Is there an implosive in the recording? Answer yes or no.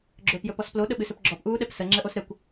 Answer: yes